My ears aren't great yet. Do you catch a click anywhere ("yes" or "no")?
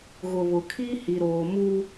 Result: no